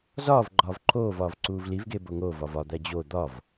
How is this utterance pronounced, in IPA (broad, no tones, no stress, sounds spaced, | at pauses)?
z ɒː v ɡ͡ǃ ɒː v ǃʰ oː v ɒː v ǀ uː v l i v ɡ e b o ŋ o v ɒ v ɒ d̪ æ d͡ʑ o d̪ ɒ v